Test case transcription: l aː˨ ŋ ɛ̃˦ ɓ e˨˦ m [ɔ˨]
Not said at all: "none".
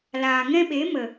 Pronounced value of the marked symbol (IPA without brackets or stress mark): ə˨